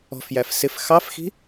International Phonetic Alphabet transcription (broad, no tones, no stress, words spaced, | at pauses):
ɔ̤fjæf sɪf xɑfxi̤